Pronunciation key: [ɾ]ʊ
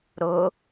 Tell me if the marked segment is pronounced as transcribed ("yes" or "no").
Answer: yes